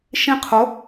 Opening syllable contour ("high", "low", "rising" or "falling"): falling